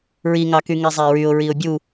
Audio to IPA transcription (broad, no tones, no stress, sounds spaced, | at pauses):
ɹ i ŋ ɑ k y ŋ ɛ zˤ æ ɹ y ʊ̯ ɹ i ʊ̯ bʲ u